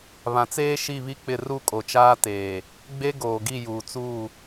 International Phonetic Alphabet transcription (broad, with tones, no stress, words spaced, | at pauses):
βã˨t͡seː˦ ʃi˦˨βi˦k͡pɪ˦˨ ru˦kʼo˨t͡ʃaː˦ teː˨ | ɡ͡be˦ɡoː˨ɡi˦˨ juː˨t͡suː˦˨